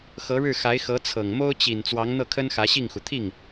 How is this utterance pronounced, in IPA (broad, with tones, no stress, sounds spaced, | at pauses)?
x ɤ˧˥ ɻ ɻ̩˥˩ x a˧˥ ɪ̯ x ɤ˧˥ t͡sʰ ɤ˨˩ ŋ m o˥ ʊ̯ t͡ɕ i˨˩ n t͡s w ɑ˧˥ ŋ n̪ ɤ˥˩ kʰ ə˥ n x ä˧˥ ɕ i˥˩ ŋ x u˩ t̪ʰ i˥˩ ŋ